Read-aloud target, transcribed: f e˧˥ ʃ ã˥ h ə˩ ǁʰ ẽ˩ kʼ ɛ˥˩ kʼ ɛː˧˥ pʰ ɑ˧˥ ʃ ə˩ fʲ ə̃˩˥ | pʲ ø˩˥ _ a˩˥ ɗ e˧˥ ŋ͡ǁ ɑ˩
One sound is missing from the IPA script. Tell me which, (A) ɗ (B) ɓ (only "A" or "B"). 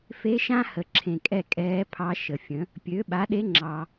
B